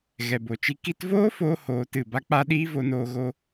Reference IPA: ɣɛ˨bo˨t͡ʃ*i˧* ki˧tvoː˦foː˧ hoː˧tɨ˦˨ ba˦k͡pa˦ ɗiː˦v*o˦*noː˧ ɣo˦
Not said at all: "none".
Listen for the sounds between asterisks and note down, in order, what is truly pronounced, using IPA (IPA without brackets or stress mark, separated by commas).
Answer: i˧, o˧